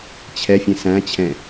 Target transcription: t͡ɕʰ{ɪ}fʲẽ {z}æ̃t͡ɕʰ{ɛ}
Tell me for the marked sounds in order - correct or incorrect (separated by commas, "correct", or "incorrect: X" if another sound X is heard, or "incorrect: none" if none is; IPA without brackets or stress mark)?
incorrect: ɛ, incorrect: s, incorrect: ɛ̃